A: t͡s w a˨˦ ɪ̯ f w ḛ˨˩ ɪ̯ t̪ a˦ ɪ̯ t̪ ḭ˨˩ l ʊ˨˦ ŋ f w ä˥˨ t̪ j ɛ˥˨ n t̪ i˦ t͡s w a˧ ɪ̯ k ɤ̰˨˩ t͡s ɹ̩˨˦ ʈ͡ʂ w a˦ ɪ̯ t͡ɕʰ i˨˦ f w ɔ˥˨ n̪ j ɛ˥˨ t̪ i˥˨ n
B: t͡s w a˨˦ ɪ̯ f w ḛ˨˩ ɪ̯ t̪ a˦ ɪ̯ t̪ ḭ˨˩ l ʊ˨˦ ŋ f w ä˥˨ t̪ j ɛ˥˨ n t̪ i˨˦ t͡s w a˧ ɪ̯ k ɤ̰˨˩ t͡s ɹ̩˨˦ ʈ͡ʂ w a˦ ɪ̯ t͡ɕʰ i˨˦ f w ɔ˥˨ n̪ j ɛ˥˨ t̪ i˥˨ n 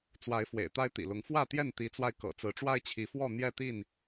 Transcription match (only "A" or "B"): B